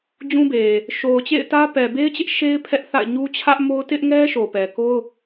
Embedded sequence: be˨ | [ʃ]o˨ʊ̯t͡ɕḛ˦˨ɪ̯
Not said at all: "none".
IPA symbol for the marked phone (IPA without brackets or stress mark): ʃ